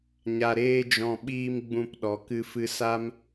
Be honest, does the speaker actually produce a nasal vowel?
yes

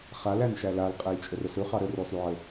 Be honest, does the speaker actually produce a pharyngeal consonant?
yes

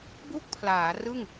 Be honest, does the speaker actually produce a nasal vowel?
no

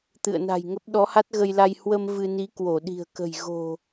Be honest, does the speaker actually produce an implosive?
yes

